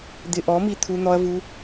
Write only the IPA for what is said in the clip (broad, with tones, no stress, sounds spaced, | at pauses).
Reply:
d̪ ɪ˧ ʔ ɔ˨˦ m i˧ t̪ʰ u˧ n̪ ɔ˧ ɐ̯ v u˧